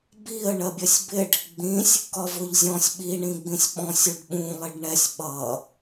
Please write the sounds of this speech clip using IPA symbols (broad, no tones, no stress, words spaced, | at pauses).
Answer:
biə̯ ɳɜbʲɜsʲbɪɖ | ɡ͡bĩsʲ | kɒvʊʎzʲɔ̃sʲ ɓi ɳĩɡ͡bĩsʲɓɔ̃sʲ uɖɓũ lˠɪɖɳɛsʲ ɓʌ